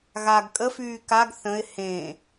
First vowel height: low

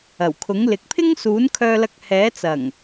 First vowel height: low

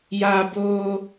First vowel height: low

